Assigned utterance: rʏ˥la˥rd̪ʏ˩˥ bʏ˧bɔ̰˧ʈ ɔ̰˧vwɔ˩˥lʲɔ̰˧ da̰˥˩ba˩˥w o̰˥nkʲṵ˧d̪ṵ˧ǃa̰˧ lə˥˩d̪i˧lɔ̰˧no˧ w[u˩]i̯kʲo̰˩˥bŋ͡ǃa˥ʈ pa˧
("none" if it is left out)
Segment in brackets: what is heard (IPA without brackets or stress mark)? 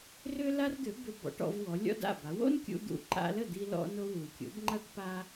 u˩